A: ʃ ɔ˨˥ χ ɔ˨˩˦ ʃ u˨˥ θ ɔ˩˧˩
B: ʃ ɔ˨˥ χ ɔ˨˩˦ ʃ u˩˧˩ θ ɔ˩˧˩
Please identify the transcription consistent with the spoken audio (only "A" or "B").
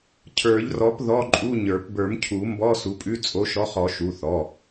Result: B